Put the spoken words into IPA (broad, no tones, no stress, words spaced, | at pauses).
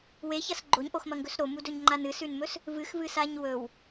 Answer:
weçɐs ɡ͡ǃoɲʔoxmɐŋɡɵs ɾomudɵɲŋ͡ǃan ɨsʉnmɵs | vɨxvɨsaɲ wɵw